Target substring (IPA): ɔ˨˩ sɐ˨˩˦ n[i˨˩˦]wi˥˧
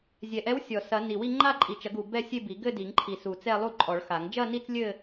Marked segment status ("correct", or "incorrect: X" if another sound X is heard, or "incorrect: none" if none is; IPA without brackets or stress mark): incorrect: i˨˩